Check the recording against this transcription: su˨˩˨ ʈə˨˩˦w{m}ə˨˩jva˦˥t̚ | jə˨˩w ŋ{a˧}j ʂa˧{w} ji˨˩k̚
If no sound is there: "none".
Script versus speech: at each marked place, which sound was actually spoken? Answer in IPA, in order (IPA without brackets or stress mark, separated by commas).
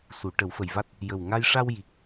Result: f, a˧, w